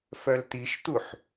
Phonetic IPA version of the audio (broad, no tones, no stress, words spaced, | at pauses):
fœlt̪iʃt̪uħ